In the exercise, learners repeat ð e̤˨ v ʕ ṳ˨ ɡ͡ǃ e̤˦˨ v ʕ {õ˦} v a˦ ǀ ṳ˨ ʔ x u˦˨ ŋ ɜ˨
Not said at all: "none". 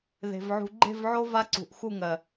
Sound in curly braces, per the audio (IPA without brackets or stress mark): o˦